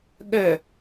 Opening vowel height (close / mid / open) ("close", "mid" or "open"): mid